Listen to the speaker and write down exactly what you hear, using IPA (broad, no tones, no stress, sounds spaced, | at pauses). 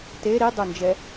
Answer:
t e ɾ i dˤ o n d͡ʒ ɛ